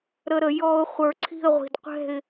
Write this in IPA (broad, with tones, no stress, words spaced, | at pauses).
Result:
ɾə˧ɾə˩˧ jɔ˧ʊ̯ χʷə˞˧ǀʰi̤˥˧ə̯ʁʷi̤˧d qʷɛ̤˥˧ɪ̯